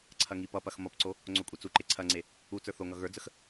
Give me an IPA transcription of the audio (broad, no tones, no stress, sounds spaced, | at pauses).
ǀʰ ɐ ŋ i p ʌ p ɐ x m ʌ p ǀ o | ŋ͡ǀ o kʷʼ i t͡s u ǃ e ǀʰ ɐ ŋ͡ǀ e | u t͡s ə˞ θ o ŋ ʌ ɣ ə˞ d͡z ə x